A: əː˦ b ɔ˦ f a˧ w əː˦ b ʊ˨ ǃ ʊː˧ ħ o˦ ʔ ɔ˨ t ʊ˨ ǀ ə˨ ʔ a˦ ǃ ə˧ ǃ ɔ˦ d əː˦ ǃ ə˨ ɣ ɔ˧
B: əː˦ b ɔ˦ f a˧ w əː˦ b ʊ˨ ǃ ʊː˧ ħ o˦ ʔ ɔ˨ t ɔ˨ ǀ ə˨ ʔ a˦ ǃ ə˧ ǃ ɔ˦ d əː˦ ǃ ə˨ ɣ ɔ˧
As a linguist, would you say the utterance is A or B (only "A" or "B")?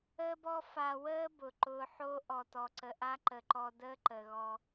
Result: B